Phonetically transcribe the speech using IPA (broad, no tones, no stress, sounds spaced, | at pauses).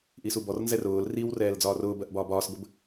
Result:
ʔ i s u b ɔ r n z ɛ r ʊː l r i w r ɛː l d͡z ɒː r ʊː b ɜ ʔ b ɒː b ɒː s b ə b